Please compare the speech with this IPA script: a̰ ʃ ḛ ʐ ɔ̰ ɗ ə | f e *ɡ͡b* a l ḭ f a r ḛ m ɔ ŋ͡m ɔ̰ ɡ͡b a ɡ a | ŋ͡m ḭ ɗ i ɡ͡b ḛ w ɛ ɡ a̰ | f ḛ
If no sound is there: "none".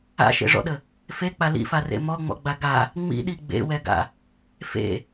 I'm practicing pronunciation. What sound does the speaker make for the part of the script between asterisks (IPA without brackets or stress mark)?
k͡p